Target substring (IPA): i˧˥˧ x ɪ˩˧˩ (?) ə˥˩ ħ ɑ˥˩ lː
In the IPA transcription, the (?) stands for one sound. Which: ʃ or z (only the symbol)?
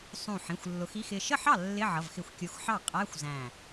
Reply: ʃ